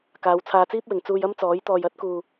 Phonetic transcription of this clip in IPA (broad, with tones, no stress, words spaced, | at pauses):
kaː˨˧wt͡sʰaː˧t͡siː˥p̚wɪ˨ŋ t͡suː˧jɐ˥mt͡sɔː˨˥j t̪ɔː˧jɐ˥t̚kuː˧